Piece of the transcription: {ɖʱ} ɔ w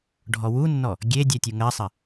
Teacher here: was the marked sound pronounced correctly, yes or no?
yes